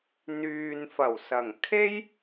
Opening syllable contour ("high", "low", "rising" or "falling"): low